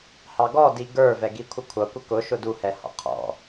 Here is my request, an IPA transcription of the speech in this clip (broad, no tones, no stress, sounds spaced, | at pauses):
h ɑ ɡ ɔ d i ɡ ə˞ v ɛ ɡ i kʷʰ ə kʷʰ ʌ kʷ ə k ʊ ʃ ʊ d u h ɛ h ɔ̰ qʰ ɔ̰